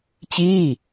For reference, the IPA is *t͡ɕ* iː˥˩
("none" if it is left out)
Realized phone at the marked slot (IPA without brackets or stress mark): t͡ɕ